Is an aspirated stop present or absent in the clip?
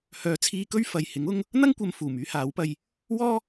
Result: present